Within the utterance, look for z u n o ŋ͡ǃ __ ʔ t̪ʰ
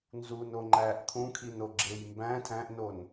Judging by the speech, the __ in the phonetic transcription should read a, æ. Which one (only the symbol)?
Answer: æ